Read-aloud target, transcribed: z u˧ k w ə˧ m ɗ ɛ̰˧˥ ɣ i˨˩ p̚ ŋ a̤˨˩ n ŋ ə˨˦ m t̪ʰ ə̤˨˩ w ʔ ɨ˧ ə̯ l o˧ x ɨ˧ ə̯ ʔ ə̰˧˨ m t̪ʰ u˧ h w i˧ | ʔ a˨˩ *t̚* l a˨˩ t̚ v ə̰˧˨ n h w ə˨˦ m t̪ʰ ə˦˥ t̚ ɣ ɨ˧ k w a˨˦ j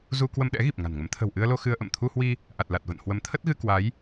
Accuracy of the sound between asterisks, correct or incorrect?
correct